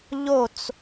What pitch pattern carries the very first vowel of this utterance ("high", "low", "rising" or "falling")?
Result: falling